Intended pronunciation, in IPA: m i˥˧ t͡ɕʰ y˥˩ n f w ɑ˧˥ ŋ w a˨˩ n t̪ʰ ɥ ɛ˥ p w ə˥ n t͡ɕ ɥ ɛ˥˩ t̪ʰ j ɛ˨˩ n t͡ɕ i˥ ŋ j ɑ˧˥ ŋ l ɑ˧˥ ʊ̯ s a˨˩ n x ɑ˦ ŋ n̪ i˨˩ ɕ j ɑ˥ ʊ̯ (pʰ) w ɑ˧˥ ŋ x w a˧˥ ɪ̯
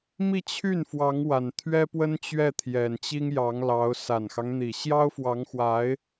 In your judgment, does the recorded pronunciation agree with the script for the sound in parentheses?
no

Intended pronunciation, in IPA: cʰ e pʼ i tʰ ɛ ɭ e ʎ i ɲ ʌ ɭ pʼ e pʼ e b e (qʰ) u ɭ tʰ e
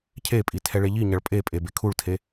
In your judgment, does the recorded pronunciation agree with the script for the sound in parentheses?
no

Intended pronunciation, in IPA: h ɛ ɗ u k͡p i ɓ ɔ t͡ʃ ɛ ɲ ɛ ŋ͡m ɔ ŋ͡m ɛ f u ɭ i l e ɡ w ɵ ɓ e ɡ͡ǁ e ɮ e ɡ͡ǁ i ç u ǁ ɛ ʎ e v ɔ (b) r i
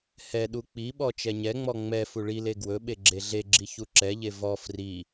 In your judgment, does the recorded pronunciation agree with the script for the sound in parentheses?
no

